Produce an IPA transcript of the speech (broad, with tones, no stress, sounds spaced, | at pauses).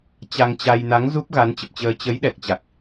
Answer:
t͡ɕ a˧ ŋ t͡ɕ a˧ j n a˨˦ ŋ z u˦˥ p̚ ɣ a˨˦ n t͡ɕ ə˨˩ p̚ t͡ɕ əː˧ t͡ɕ ə˨˦ j ɗ ɛ˨˩ k̚ t͡ɕ a˨˩ k̚